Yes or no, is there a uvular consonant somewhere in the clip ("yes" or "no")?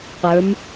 yes